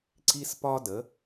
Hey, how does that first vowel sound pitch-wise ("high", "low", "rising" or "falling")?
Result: high